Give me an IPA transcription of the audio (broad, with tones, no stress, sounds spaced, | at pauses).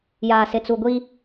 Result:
j aː˨ s ɪ˨ t͡s u˨ ɡʷ i˦